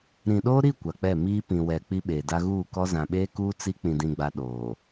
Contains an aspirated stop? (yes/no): no